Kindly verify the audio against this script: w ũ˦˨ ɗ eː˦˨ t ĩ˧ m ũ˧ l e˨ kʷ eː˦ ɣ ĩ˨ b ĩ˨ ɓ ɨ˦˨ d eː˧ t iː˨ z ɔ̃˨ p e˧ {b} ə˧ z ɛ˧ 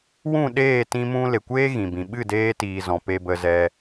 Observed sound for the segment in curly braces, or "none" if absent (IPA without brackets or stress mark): b